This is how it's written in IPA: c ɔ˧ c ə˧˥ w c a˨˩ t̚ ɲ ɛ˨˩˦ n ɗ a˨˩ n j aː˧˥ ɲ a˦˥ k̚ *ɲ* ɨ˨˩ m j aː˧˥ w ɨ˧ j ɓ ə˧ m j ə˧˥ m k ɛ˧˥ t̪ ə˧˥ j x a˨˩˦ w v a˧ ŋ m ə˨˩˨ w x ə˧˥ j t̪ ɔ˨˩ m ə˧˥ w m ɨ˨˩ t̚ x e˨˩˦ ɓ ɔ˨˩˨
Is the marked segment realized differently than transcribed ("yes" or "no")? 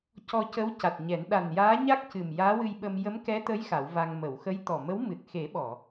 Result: yes